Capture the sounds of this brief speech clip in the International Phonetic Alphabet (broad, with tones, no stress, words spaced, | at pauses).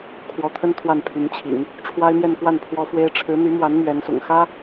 kʰwɔ˧˥t̪ʰə˥n t̪ʰwa˥˩npʰy˧˥nt͡ɕʰḭ˨˩˦ŋ | ʈ͡ʂʰwa˥ɪ̯mjɛ˥˧nkwa˥˩n pʰwɔ˥fwe˥ɪ̯ ʈ͡ʂʰɻ̩˧˥n̪y˧˥mwa˧˥n mɥɛ˧˥nsʊ̰˨˩ŋ xä˥